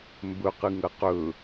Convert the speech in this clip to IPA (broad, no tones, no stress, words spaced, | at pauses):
mbɵqɨ ŋɐqɵ